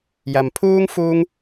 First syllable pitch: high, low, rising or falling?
low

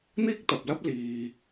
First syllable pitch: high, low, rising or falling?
high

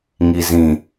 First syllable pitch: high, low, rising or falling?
low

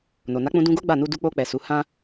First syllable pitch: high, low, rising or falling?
low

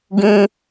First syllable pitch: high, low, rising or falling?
high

